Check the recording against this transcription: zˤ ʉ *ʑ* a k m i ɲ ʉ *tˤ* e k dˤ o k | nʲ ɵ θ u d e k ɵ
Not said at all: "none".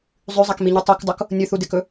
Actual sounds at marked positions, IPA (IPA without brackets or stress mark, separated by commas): zˤ, tˤ